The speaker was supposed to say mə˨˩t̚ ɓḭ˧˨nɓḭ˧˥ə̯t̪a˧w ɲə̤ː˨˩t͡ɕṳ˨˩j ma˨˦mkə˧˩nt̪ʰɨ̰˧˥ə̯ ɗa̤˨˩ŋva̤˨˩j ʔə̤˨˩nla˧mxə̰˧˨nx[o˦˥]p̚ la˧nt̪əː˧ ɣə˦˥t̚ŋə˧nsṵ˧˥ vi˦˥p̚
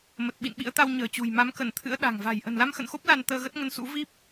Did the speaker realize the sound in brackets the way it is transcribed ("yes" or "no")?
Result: yes